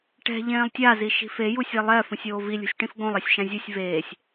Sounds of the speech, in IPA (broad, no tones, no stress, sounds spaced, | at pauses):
ʈ ɛ̤ ʎ ẽː lˠ tʲ a z i ʃ i̤ f e j u sʲ ɛ lˠ ɛː f ũ sʲ oː v i lʲ ṳ sʲ ʈ ĩ f ɡ õ lˠ ɛ sʲ ʃ ã zʲ ɯ sʲ v eː sʲ